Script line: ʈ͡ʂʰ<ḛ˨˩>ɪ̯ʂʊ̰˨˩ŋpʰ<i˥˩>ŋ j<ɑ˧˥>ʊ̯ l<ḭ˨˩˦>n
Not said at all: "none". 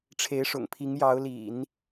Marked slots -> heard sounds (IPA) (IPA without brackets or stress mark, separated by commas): e˧˥, i˧˥, ɑ˧˥, ḭ˨˩˦